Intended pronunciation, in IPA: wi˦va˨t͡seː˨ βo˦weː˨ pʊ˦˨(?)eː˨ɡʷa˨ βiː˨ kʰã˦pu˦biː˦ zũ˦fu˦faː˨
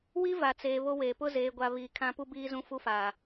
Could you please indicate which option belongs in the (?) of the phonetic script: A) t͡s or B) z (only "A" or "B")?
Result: B